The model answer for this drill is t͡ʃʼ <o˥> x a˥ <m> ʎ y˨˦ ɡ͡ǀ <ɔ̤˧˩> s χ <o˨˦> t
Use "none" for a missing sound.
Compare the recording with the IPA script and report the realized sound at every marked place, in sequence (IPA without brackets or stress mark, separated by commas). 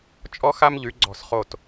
ɔ˥, m, ɔ̤˧˩, o˧˩